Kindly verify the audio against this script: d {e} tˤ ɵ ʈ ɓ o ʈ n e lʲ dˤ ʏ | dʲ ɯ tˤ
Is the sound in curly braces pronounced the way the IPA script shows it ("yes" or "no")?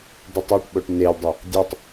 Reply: yes